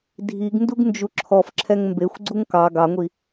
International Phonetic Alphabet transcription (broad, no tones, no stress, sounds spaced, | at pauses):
dʱ i ɡ n d u ɡ n d͡ʒ u ǁʰ ɔ f ǁʰ ɛ ŋ m b e xʷ ɡ͡ǀ u ŋ k ɑ ɡ ɑ ŋʷ i